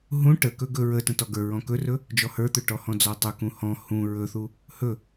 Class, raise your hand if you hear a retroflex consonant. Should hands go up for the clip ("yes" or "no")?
yes